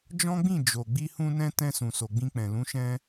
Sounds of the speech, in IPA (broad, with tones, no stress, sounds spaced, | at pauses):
d͡ʒ ɔ̃˦ ɡ͡b ĩ˦˨ d͡ʒ o˨ ɡ͡b i˧ h ũ˧ n ɛ̃˧ t ɛ̃˧ s ũ˨ s o˨ ɡ͡b ĩ˧ k͡p ɛ̃˨ l ũ˨˦ ʃ ɛ̃˧